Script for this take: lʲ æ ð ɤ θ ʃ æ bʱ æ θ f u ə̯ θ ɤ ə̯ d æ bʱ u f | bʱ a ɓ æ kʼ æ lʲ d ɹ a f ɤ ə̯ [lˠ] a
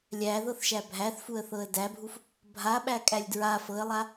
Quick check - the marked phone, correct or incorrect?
correct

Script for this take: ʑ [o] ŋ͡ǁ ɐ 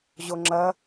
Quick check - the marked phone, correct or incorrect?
correct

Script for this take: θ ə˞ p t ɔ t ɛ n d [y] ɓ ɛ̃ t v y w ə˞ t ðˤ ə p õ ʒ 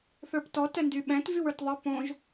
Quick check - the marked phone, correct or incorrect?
correct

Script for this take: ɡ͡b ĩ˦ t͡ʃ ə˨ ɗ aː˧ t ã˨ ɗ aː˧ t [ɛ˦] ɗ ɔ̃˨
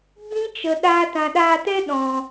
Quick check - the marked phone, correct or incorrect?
correct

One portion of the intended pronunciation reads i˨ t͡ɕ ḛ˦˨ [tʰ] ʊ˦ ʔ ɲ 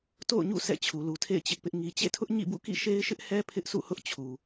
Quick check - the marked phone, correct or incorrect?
correct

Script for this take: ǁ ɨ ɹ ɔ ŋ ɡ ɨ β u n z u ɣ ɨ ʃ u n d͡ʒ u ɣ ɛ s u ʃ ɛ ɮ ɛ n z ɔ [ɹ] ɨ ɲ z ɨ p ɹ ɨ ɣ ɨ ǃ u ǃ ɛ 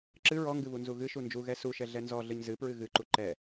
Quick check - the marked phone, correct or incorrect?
incorrect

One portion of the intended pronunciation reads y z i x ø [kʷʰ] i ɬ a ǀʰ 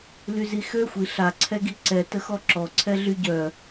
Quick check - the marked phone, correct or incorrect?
incorrect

